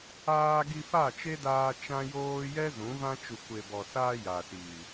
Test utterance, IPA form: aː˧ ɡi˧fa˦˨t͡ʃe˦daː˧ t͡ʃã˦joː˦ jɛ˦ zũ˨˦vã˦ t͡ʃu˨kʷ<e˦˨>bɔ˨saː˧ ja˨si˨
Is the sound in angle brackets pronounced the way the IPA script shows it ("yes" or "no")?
no